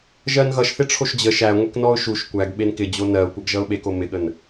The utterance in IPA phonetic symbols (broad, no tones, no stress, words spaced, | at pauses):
ʒɜnɣʌʃ θɪʈ͡ʂʰoʃd͡ʑə ʃæ ŋʷeknɔʊ̯ʃuʃ kʷæɡ ɓenkɪ d͡ʑonɜʊ̯ kʷʌɡʒʌʊ̯ɓeko mɪɠən